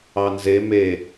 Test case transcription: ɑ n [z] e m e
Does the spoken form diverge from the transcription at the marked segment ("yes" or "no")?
no